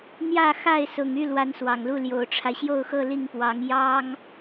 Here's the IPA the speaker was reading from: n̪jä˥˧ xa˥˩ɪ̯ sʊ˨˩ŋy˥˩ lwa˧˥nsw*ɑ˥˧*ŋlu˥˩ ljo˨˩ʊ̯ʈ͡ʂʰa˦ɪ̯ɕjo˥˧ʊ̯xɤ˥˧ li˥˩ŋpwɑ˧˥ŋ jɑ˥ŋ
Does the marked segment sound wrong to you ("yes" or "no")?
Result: yes